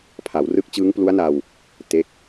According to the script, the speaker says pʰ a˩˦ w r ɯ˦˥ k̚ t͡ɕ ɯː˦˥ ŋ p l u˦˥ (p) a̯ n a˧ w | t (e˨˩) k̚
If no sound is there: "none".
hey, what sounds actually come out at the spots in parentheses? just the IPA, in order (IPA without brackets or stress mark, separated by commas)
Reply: none, e˦˥